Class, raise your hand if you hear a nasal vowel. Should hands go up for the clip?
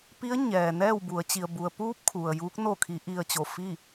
no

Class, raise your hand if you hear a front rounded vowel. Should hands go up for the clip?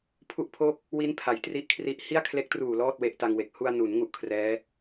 no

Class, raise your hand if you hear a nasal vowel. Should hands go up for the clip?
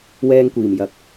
no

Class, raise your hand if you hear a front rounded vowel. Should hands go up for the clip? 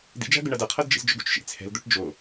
yes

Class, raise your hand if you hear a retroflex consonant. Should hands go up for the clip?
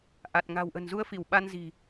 no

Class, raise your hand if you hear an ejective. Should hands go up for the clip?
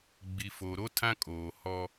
yes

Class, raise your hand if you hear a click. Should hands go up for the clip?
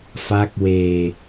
no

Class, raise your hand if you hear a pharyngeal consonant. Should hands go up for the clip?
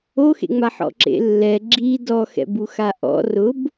yes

